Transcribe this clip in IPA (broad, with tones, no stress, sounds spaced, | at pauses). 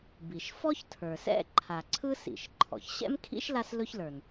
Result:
b i˩ ʃ f ɔ˥ ç tʰ ə˞˩ s ɛ̰˥ ǃʰ a˩ ǀʰ ɯ˥ s ḭ˩ ʃ ǃʰ ɔ̰˩ ç ɕ ɛ̰˥ m kʰ ḭ˥ ʃ l a˥ s l ɵ˥ ç l ə˞˩ n